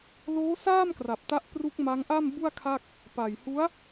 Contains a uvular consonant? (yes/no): no